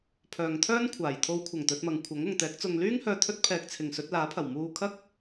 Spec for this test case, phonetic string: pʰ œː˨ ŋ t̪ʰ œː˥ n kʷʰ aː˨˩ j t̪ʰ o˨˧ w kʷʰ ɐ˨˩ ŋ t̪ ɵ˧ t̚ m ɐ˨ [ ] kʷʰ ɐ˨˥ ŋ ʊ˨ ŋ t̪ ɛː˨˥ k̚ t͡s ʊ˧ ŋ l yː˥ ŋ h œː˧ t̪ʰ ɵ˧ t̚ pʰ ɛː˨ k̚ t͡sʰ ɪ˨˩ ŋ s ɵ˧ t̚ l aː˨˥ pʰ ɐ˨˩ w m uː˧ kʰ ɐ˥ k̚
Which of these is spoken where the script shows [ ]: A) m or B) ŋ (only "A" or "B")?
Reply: B